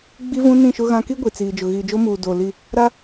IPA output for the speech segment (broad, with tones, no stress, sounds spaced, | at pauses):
ɡ͡b i˦ v ũ˦ n ĩ˦˨ ʃ ʊ˦ ɣ ã˦ k i˦ ɡʷ iː˨ t͡s iː˨ d͡ʒ ʊ˨ ɣ iː˨ d͡ʒ o˦ m uː˨ d oː˨ l i˦˨ | ɾ a˦